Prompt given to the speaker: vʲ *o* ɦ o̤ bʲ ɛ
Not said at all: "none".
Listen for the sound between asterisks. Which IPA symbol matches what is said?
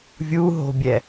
u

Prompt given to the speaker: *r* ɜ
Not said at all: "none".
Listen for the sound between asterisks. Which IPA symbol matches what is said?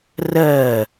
r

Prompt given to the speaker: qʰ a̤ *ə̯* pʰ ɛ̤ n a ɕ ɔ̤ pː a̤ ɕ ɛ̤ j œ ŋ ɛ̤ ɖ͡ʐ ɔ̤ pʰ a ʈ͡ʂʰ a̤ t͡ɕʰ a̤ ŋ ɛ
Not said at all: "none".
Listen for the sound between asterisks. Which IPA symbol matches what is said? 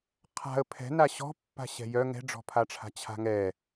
ə̯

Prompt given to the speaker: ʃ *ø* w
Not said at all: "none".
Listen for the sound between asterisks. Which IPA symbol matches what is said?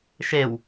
e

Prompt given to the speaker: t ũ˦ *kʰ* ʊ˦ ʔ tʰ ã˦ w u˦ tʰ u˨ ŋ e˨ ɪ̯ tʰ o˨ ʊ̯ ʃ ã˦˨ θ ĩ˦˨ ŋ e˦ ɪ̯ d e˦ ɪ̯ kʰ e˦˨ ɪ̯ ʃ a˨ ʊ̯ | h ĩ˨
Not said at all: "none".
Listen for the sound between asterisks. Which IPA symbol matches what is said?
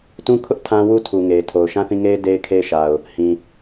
kʰ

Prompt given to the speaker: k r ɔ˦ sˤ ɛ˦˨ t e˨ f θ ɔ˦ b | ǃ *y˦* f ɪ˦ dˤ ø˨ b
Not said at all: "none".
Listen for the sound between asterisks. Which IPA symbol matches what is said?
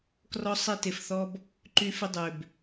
y˦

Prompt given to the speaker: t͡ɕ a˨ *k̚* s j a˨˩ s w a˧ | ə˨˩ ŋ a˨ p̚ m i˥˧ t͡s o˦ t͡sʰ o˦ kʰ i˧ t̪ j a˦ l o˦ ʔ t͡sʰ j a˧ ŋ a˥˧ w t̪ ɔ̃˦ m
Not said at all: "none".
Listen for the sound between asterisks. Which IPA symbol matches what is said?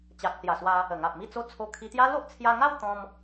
k̚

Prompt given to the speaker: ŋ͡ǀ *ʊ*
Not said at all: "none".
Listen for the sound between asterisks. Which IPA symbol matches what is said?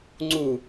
u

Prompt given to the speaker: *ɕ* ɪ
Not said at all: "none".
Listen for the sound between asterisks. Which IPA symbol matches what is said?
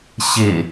ɕ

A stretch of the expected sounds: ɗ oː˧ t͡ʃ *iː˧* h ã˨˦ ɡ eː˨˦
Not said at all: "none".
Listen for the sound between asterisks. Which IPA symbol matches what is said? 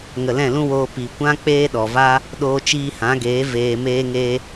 iː˧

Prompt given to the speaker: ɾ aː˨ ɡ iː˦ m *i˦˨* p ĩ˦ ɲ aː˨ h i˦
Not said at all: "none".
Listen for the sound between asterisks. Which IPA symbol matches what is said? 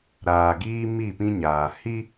i˦˨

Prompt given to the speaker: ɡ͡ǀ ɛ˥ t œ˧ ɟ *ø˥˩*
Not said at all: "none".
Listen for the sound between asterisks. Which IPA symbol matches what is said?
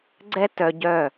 œ˥˩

